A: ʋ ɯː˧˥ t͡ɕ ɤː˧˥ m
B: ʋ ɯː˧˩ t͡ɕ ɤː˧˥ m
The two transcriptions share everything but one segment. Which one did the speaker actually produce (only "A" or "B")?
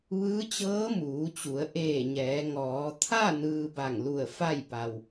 A